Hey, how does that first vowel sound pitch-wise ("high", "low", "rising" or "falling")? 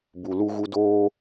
low